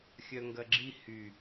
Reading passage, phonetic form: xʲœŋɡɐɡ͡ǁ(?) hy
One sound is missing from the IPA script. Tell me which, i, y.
i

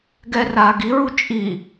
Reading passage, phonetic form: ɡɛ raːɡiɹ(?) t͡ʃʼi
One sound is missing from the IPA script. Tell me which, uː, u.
u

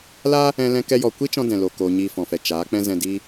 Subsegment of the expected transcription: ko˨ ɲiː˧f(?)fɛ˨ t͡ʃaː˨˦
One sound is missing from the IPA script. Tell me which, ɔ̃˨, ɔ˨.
ɔ̃˨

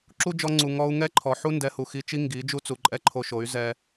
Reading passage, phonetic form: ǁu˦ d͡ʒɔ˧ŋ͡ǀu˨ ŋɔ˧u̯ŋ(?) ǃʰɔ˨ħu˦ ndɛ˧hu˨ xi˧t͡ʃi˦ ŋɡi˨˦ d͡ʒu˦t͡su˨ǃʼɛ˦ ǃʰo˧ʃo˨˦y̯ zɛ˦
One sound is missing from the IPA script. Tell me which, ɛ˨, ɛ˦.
ɛ˦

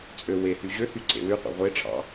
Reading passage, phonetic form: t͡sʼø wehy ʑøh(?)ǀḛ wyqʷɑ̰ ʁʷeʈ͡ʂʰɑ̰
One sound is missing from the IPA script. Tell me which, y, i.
y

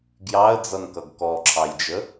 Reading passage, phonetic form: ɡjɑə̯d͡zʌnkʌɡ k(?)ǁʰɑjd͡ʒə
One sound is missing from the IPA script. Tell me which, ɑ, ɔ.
ɔ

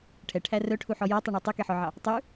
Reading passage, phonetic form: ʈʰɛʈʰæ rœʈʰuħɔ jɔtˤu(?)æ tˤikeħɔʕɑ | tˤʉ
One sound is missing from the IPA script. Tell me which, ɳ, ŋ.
ɳ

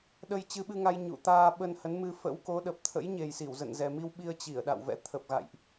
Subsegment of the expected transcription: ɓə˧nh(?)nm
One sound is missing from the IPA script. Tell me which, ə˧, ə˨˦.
ə˨˦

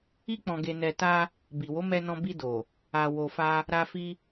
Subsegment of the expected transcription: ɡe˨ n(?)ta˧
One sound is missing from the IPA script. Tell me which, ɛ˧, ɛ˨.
ɛ˨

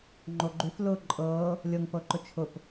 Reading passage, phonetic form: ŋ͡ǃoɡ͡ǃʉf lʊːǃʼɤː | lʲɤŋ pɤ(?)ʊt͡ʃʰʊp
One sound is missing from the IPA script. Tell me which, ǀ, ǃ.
ǃ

